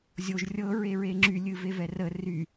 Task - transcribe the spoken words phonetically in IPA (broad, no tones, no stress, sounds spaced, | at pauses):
zʲ o ʒ rʲ ɤ ɹ e ɹ e ŋ͡ǁ y lʲ ɨ v e v ɛ r ə r y